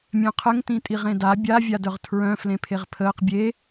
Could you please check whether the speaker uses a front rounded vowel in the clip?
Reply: yes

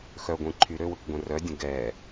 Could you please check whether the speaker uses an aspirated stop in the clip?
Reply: yes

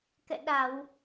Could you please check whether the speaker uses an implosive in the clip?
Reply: yes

